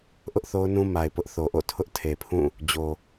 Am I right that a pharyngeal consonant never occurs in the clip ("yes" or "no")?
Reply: yes